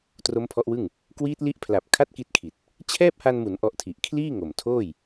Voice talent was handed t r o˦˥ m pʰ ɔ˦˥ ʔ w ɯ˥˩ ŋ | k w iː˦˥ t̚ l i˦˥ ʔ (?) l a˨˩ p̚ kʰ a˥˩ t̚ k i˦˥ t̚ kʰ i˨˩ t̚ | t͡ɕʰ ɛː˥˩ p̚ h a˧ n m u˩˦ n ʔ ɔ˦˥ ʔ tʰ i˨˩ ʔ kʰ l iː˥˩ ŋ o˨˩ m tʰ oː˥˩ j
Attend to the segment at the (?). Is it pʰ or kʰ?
pʰ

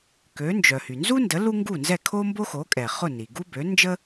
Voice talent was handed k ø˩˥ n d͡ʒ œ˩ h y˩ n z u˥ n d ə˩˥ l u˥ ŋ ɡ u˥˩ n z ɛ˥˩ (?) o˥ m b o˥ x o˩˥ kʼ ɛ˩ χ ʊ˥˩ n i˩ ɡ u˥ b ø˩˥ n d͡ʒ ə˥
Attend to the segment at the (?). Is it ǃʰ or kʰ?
kʰ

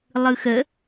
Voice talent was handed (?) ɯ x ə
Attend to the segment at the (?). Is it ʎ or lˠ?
lˠ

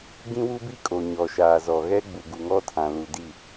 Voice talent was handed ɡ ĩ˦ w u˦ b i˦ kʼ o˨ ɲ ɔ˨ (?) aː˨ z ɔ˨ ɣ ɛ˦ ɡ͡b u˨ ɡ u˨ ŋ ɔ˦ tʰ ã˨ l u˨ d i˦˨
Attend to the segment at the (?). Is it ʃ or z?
ʃ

